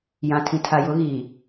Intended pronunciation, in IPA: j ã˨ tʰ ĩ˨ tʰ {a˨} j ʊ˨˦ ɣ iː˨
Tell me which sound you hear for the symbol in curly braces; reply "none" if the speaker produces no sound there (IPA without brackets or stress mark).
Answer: a˨